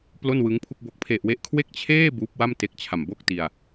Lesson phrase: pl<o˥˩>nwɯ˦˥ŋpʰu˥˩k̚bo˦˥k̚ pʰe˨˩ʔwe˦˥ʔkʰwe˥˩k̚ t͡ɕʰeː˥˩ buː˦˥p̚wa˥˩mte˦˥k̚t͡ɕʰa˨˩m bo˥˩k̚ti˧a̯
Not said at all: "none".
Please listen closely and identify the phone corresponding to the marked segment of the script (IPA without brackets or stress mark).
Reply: o˥˩